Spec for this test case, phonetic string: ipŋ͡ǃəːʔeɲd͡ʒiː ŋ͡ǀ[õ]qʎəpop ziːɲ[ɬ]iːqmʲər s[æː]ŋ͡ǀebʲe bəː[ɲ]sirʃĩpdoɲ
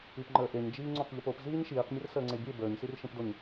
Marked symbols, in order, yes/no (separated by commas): yes, no, no, yes